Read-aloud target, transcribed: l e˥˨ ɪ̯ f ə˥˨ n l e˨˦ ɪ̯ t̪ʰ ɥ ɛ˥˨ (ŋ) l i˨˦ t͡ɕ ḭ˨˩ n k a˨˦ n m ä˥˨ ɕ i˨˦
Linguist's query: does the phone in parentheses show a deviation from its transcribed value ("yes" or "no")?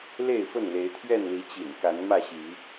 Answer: yes